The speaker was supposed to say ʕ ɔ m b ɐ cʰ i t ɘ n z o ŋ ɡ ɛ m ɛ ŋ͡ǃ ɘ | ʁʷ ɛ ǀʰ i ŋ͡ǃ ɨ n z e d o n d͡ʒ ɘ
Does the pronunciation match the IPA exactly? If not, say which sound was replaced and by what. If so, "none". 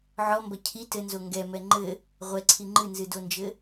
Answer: e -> ɨ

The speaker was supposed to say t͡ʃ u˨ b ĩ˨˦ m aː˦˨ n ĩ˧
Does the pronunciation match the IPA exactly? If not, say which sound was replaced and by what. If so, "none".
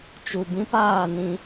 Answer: m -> p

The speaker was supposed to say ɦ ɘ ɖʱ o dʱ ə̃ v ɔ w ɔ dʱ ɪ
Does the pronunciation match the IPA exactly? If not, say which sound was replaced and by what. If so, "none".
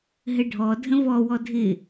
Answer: o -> ɔ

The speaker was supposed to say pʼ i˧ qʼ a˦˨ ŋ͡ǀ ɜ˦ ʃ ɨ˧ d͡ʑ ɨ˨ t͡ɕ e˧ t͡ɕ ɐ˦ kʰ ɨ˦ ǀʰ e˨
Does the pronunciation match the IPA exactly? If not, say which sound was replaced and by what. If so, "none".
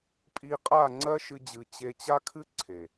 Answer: ɐ˦ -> a˦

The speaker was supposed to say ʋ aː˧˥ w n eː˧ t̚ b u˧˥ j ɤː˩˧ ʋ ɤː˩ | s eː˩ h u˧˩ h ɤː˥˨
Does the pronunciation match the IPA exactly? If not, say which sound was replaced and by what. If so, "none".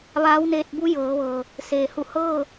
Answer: none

